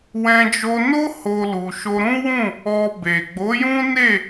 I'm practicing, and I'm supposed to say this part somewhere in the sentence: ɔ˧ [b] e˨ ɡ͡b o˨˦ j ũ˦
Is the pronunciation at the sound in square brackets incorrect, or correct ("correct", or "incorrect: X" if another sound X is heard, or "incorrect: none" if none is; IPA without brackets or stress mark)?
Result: correct